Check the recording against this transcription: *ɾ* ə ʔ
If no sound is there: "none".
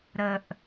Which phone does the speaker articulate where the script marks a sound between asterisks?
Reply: ɾ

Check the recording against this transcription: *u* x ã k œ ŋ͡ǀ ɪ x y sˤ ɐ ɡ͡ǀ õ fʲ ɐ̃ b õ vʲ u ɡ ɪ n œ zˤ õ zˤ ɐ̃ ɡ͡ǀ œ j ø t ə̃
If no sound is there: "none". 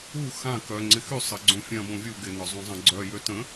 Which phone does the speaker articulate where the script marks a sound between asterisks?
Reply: u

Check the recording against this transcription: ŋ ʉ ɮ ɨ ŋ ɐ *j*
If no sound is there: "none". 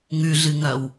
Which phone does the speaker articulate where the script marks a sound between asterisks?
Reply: w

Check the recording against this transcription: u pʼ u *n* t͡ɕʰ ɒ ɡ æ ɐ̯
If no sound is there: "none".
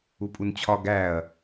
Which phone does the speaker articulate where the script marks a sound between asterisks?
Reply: n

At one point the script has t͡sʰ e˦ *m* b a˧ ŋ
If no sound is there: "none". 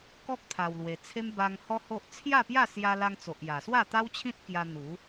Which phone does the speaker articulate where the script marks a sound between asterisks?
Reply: m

